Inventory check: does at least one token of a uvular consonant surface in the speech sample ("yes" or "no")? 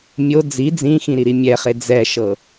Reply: yes